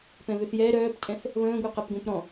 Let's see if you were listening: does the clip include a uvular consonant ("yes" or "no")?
yes